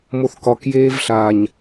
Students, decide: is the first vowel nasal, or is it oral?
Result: oral